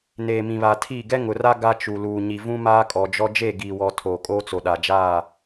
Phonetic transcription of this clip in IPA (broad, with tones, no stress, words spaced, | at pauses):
neː˨mĩ˨βa˨tʰiː˦˨ ɡɛ˦ŋʊ˨ra˦ ɡa˦t͡ʃu˨ luː˨ɲi˨ vũ˦maː˦kʼɔ˨d͡ʒɔ˦ d͡ʒe˦˨ɡiː˨wɔ˨ tʰoː˨kʼoː˦t͡so˨ ɗa˨d͡ʒaː˦˨